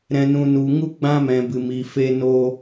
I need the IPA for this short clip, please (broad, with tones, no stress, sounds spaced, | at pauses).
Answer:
ɾ ɛ̃˨ n ũ˨ n u˨ ŋ u˧ ɡ͡b ã˧ m ɛ̃˨ b ɨ˨ m iː˨ f e˧ n o˧